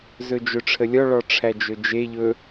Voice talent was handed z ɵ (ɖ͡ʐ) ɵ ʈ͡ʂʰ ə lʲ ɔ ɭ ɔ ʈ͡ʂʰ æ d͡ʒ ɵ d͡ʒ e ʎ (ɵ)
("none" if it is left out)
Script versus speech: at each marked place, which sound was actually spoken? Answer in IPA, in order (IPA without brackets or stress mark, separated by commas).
d͡ʒ, ɵ